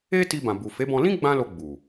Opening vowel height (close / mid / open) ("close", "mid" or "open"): mid